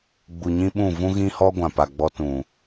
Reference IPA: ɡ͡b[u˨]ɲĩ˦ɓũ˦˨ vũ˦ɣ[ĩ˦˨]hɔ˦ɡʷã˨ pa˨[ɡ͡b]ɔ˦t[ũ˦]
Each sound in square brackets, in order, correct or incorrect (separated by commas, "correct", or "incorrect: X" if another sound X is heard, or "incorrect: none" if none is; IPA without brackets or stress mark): correct, incorrect: ĩ˦, correct, incorrect: ũ˨